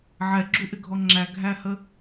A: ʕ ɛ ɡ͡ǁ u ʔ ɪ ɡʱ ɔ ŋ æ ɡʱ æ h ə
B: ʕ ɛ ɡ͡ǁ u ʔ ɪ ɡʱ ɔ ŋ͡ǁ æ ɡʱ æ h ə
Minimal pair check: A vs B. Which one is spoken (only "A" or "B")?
B